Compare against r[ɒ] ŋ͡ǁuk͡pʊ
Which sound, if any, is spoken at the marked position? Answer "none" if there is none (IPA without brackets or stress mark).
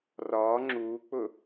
ɒ